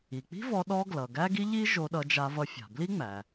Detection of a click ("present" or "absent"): absent